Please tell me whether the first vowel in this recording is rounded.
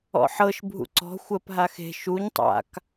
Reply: yes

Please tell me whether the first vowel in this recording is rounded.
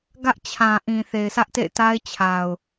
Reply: no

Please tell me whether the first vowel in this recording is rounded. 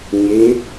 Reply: no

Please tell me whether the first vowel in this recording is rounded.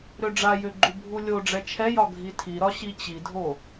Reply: yes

